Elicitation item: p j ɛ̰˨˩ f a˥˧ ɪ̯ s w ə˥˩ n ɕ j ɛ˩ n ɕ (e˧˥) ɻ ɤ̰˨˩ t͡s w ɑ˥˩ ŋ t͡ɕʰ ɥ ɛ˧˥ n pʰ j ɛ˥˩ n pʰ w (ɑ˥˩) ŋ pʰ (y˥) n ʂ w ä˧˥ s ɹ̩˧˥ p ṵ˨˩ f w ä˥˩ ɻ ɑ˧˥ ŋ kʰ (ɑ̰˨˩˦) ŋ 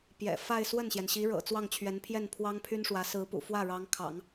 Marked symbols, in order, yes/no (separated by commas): no, no, yes, yes